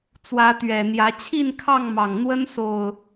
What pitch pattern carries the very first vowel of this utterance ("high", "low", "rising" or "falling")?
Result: rising